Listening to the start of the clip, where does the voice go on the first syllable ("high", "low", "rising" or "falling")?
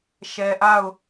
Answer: low